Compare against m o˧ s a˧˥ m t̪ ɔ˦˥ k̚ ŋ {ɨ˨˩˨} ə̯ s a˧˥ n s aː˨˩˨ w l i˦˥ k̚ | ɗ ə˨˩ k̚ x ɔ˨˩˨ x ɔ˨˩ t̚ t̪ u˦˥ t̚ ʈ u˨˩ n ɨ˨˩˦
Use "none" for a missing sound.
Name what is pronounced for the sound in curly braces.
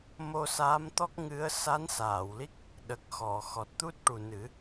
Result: ɨ˧˥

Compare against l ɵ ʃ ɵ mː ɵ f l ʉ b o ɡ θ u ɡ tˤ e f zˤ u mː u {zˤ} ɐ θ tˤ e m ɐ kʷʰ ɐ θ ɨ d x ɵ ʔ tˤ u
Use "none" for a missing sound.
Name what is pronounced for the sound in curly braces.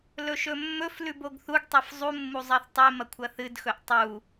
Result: zˤ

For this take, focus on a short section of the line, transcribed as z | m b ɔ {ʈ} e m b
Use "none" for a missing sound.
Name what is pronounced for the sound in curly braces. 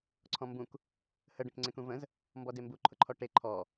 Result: d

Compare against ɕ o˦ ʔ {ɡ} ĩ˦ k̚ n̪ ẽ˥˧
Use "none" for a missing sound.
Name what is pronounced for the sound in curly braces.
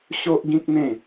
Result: ɡ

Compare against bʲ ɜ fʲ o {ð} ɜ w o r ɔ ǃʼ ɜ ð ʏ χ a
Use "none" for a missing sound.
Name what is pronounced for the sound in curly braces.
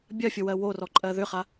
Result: w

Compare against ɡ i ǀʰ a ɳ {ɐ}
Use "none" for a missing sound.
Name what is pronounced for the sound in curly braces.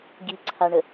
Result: ə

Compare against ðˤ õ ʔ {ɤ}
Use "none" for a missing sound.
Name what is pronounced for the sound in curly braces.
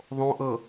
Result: ɤ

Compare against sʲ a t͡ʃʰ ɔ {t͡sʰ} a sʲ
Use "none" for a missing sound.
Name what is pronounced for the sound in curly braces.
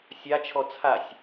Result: t͡sʰ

